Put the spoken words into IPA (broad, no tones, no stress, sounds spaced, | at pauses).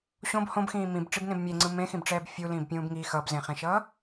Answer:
ɕ õ b h õ b x ĩː m ĩ b ʈ͡ʂ i b n ẽ b mʲ e ŋ͡ǀ ɯ m ẽ x ĩ b ʈ͡ʂ ɛː b fʲ u l ĩː b pʲ ũː b ŋ i x ʌ b z ẽ χ ẽ ʃ ʌː